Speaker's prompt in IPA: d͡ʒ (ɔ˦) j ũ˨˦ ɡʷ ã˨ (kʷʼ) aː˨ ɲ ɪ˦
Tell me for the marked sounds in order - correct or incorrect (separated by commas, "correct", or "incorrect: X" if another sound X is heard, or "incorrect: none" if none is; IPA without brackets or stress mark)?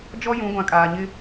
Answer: correct, incorrect: kʼ